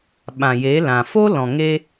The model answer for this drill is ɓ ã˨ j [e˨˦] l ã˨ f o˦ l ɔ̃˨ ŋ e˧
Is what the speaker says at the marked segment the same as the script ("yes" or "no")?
yes